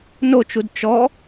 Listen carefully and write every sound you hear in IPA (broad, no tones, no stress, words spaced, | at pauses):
not͡ʃud t͡ʃɔ